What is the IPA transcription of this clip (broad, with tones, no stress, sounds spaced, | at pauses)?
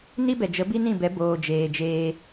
n i˦ b ɛ˨ d͡ʒ ə˨˦ b i˦ n ĩ˦˨ b ɛ˨˦ b oː˨ d͡ʒ eː˨ d͡ʒ eː˧